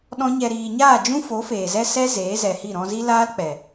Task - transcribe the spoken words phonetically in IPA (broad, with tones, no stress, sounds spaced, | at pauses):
ɗ ɔ̃˦ ɲ ɛ˧ ɾ iː˨ ɲ aː˦˨ d͡ʒ ũ˦ f o˨˦ f eː˨ z ɛ˦ s ɛ˦ z eː˨˦ z ɛ˨ h i˦˨ ɾ ɔ̃˧ z i˦ l aː˦ l k͡p ɛ˨